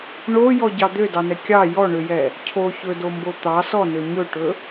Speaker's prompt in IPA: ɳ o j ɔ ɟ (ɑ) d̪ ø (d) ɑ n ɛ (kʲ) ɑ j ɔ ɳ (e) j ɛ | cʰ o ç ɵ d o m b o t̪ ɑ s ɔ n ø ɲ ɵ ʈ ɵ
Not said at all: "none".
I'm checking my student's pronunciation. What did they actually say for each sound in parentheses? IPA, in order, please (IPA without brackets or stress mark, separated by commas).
ɑ, d, kʲ, ø